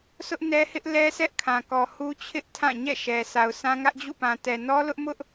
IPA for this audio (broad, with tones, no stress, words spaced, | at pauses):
sʊ˦ʔnɛ˦hɪ˦ʔ lɛ˦sɛ˦ʔkʰã˨kɔ˨ hu˦t͡ɕʰɪ˦ʔ tʰã˦˨ɲɛ̰˦˨ʃɛ˨ sʰa˨ʊ̯sã˦ ŋä˦ʔd͡ʑṵ˦˨pã˨tɛ˨ nɔ˦lʊ˦ʔmʊ˦ʔ